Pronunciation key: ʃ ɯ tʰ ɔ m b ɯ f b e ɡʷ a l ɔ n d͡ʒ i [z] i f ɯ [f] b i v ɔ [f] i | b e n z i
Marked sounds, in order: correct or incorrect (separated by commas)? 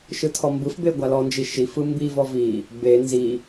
incorrect, incorrect, incorrect